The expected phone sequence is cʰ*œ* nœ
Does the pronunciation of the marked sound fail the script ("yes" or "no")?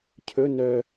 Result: yes